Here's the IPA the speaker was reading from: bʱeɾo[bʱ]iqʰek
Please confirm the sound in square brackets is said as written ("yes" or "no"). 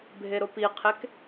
no